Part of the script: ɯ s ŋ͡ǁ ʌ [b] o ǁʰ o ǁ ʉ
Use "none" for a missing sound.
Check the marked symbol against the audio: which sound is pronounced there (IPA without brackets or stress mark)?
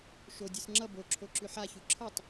b